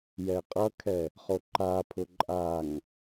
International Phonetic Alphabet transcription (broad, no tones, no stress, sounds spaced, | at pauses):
j ɛ qʼ ʌ kʰ ɛ | χ o ǃ a pʰ ʊ ǃʼ a ŋ